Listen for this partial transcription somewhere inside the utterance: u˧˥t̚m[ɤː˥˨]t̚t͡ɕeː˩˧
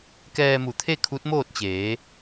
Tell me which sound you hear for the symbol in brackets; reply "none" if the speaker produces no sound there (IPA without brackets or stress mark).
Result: oː˥˨